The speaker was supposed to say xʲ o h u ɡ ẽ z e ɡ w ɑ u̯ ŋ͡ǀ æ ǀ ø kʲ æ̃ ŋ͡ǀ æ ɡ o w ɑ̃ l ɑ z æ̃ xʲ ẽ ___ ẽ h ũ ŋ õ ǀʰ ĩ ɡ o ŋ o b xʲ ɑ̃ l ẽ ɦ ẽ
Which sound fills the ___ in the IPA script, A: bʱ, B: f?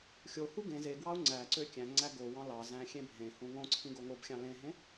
A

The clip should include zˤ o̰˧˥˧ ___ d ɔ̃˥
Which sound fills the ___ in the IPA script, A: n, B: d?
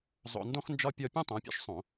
A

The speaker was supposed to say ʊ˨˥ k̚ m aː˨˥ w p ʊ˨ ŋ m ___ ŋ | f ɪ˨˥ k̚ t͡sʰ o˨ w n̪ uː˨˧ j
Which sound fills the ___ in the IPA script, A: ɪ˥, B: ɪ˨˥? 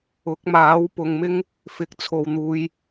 A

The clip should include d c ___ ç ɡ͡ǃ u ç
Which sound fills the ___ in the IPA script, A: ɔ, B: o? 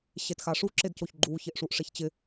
B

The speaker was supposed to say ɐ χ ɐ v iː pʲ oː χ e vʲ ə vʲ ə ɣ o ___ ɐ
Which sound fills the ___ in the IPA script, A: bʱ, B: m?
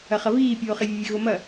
B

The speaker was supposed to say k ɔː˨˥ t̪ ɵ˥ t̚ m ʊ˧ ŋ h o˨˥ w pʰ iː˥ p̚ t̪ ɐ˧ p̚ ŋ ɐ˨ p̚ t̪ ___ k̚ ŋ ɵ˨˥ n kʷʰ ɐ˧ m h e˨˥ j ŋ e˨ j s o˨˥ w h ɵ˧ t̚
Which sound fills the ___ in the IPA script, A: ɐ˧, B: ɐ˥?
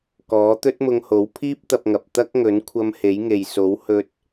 B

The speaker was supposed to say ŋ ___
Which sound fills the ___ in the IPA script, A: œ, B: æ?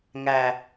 B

